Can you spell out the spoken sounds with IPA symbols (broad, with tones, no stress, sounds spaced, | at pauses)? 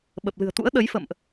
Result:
ɓ ə˨˩ p̚ l ɨ̤˨˩ ə̯ t̪ ṵ˧˥ ə̯ ɗ ə˨˦ j f ə̰˧˨ m ʔ